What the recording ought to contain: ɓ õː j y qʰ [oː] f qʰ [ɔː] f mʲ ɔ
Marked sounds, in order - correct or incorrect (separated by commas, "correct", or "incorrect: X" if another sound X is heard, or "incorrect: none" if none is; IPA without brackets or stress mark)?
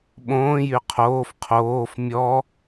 correct, incorrect: oː